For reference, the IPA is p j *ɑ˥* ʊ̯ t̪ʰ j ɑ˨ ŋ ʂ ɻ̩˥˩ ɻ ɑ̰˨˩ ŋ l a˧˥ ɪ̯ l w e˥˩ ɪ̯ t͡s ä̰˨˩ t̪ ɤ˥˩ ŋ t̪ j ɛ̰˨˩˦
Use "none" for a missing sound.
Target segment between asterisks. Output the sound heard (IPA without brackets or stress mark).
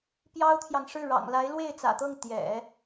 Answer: ɑ˥